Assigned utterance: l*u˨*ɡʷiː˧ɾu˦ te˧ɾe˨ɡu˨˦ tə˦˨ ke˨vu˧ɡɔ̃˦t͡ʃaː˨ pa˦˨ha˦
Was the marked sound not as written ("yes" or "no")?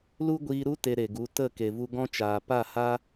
yes